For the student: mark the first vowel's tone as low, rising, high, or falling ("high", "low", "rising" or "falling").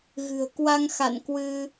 low